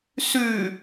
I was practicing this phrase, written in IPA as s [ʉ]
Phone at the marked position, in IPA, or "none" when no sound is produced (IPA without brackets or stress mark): ʉ